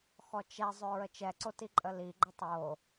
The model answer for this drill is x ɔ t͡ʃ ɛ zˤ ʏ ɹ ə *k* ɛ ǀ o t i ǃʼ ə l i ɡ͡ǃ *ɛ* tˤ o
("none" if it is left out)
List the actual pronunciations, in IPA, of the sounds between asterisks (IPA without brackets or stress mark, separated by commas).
t͡ʃ, ə